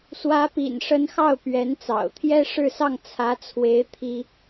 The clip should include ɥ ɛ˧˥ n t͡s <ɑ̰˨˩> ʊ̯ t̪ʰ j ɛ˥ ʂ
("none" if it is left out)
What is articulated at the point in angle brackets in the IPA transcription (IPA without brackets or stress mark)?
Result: ɑ̰˨˩